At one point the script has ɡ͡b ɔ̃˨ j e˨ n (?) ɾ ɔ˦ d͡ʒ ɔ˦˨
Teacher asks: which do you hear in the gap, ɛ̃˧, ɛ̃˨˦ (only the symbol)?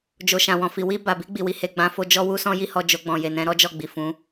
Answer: ɛ̃˨˦